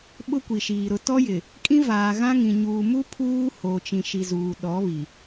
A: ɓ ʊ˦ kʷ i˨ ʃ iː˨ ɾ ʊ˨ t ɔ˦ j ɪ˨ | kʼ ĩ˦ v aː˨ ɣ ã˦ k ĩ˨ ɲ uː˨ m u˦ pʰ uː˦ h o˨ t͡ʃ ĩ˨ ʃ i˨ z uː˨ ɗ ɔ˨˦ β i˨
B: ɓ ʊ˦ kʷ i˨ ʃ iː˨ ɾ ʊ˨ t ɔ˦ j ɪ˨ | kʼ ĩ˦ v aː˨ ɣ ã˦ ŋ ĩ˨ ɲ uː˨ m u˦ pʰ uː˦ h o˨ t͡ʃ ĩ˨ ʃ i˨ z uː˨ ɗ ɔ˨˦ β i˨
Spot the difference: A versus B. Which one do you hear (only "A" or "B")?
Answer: B